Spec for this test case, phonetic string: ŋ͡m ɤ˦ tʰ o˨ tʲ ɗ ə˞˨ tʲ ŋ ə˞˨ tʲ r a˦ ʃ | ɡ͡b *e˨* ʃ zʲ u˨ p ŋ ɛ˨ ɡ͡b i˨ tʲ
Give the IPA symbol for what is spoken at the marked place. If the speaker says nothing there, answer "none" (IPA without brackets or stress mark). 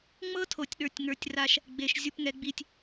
e˨